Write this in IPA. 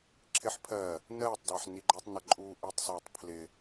ǁʰ ɪ ħ pʰ ɜ | n ɜː tˤ d ɑ ħ n i ɡ͡ǃ ɜ tˤ n ʌ ǃʼ uː ʔ i tˤ s ɔː tˤ pʰ l ɪ

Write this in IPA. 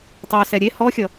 tˤ ø s ɛ ɾʲ e h ɔ xʲ ʌ

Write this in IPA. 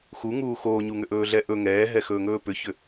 x u ŋ uː x oː ɲ u ŋ ʏ ʔ ɵː ɮ ɛ ʔ ɵ ŋ ɛː ɦ ɛ x ɵː ŋ ɵː p ʏ ç ʏ

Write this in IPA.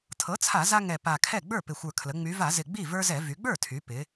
tʰ ɤ˩˥ t͡sʰ a˧˩˧ z a˦ ŋ ɛ˨˩ p a˨˩ kʰ ɛ˥˩ ɡ͡b ə˞˥˩ p ɪ˨˩ xʷ ə˞˨˩ kʰ l ə˩˧ ŋ͡m y˩˧ v a˧˩˧ z ɪ˨˩ ɡ͡b i˥˩ v ə˞˦ z ɛ˧˩˧ v y˩˧ ɡ͡b ə˞˥˩ tʰ y˩˧ p ɪ˩˧

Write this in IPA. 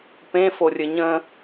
p ẽ f o rʲ ɘ ɲ ə̃

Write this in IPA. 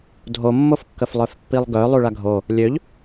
dʱ o mː o f kː ə f lˠ œ f pː i lˠ ɡ œ lˠ u ɭ a ɡʱ o | lʲ ø ʎ

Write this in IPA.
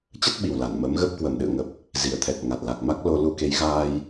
t͡ɕ ə˦˥ t̚ ɓ i˨˩ w l a˧˩ n m ə˨˦ m ɣ ə˦˥ p̚ k w ə˨˩ m ɗ ɨ̰˧˨ ə̯ ŋ ə˨˩ p̚ | z i˨˩ ə̯ t̪ʰ ɛ˨˩ t̚ ŋ a˨˩ t̚ l a˨˩ k̚ m a˦˥ k̚ l o˧ l u˧ k e˨˦ j ɣ aː˧ j

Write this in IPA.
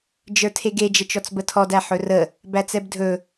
d͡ʒ ə˞ tʰ e ɡ e d͡ʒ ə t͡ʃ ɔ t͡s b ə tʰ ɔ d æ ħ ɵ r ə | b æ t͡s ɛ b dʱ ɵ

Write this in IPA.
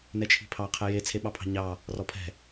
n ɛ t͡ʃʰ i̤ pʰ ɑ qʰ ɛ j e t͡sʰ e ɓ ɑ pʰ ɑ̤ ɲ ɑ | r ɔ pʰ ɛ̤

